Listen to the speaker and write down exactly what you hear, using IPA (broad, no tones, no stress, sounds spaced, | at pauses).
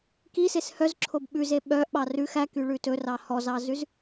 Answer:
k i s e s h œ z ǁʰ o b ɓ ʉ z e ɓ œ ʔ ɓ ɑ r ʉ x æ k y ɭ ʉ t ɵ r ɑ h ɔ z ɑ z ʉ z